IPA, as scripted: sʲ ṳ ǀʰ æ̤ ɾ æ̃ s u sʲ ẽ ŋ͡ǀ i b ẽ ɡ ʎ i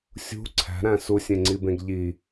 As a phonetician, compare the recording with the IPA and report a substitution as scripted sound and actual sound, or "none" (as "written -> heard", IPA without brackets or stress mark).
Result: none